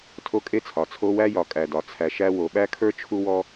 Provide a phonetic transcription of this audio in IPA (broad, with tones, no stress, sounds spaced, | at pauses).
tʰ o˦ kʼ e˦ t͡sʰ ɒ˨ t͡sʰ o˦ w æ˦ j ɒ˨ kʼ æ˨ d ɒ˨ t͡sʰ æ˨ ʃ æ˧ w o˨ ɓ æ˦ kʰ ə˞˦ t͡ʃʰ u˦ w ɔ˦